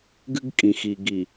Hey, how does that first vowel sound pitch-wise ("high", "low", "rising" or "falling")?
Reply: high